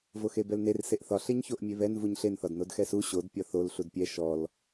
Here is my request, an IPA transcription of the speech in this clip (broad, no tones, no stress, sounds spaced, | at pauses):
v o x e b ɛ l n e r s e ʔ θ ɒ ɬ e ɲ ç o ʔ mʲ e β ɛ n v u ɲ ɬ e n θ ɒ d n o d x ɛ s u ɕ o d pʲ ɒ θ o l ɬ u d pʲ ɛ ʃ ɔ l